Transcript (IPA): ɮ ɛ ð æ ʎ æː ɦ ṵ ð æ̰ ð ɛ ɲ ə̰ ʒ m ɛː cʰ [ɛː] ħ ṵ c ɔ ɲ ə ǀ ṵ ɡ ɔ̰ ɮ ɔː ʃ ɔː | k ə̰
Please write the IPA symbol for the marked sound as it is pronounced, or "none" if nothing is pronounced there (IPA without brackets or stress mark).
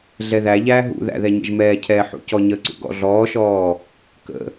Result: ɛː